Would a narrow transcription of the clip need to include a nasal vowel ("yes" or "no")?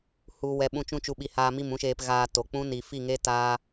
yes